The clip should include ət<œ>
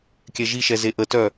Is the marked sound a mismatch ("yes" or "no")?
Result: no